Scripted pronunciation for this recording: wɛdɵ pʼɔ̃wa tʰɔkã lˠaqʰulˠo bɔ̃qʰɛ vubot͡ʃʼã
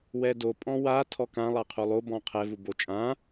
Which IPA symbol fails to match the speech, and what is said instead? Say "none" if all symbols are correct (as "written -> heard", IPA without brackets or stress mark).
ɵ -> o